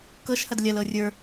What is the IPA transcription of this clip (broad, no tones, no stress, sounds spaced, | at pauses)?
k ɤ ʃ h ɐ d lʲ ɐ l ɤ rʲ ə˞